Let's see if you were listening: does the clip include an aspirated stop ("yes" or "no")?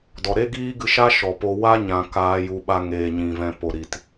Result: no